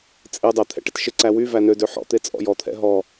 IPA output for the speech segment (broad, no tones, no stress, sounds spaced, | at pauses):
t͡sʼ e dˤ ɛ t̪ʰ ɛ̰ ʈ ɪ t ʃ ɪ ǀ æ w y v æ n ø d ø ħ ɔ̰ t̪ e t͡sʼ ɔ̰ j ɔ t̪ʰ ɛ̰ ɦ ɔ